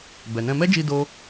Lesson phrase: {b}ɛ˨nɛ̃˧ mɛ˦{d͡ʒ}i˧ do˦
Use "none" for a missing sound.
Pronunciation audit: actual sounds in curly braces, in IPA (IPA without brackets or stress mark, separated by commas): b, d͡ʒ